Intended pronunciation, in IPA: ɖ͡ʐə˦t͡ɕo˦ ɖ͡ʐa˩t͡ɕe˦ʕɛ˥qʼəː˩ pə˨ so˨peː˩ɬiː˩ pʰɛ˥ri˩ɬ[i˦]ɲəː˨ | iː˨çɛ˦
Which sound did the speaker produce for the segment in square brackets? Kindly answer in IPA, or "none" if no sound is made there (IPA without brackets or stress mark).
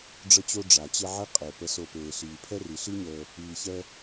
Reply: i˥